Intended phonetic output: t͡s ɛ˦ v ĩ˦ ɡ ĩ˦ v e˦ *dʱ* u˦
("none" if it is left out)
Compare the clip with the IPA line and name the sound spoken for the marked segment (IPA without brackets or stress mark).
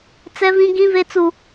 t͡s